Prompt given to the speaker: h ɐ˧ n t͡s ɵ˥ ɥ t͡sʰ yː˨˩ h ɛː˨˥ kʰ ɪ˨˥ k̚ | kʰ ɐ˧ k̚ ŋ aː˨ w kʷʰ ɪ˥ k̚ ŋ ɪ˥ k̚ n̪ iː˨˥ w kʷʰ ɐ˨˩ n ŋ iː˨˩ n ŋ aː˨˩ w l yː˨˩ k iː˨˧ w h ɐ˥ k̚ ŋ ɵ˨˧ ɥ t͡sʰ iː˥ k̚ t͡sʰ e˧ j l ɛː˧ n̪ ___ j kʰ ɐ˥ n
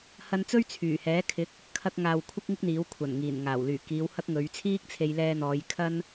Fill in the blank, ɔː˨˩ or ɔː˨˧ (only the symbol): ɔː˨˧